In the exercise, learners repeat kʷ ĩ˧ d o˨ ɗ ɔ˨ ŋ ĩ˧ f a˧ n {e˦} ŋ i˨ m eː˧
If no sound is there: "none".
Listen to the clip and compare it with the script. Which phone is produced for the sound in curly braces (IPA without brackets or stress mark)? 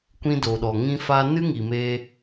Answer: ɨ˦